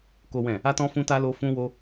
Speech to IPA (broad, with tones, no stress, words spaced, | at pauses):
ko˦wɛ̃˦˨ | a˦tɔ̃˦fũ˦ta˦ lo˦ fũ˦wo˦